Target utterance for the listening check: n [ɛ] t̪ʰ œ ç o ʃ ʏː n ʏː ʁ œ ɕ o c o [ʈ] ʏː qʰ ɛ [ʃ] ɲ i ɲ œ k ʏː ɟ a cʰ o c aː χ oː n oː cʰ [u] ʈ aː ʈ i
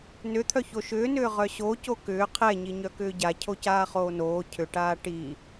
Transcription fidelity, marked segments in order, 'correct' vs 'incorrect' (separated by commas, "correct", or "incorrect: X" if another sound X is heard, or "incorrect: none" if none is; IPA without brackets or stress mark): incorrect: ʏ, incorrect: k, incorrect: none, incorrect: ʏ